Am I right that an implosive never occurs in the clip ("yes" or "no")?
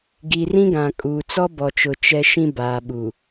no